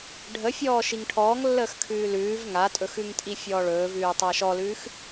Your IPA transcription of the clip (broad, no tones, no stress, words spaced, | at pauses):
ɖʱəfʲɔː ʃiŋʈʰɔːŋlːəːx kʰʉːlʉːv ŋatʼɵx ʉŋtʼifʲɔːɭɵːv ʉːtˤaʃɔlʉːx